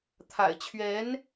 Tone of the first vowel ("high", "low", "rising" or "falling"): low